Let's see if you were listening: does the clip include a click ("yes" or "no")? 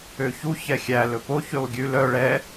no